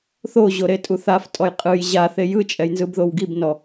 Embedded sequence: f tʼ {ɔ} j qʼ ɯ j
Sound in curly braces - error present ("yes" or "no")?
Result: no